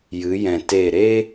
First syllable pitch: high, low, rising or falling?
rising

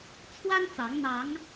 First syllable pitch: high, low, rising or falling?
high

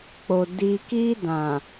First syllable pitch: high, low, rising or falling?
low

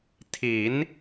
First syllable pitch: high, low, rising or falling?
rising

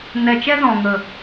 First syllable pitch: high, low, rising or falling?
low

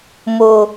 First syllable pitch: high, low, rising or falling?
low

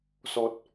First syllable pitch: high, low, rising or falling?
high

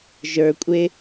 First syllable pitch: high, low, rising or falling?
low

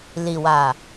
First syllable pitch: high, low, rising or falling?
low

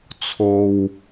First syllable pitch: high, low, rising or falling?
low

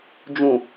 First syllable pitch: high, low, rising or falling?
low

